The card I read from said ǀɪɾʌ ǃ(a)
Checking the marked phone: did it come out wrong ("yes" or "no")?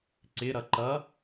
yes